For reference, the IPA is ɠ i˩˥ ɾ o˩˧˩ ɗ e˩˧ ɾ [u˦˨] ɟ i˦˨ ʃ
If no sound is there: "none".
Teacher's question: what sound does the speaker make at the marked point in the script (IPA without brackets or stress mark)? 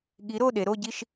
o˦˨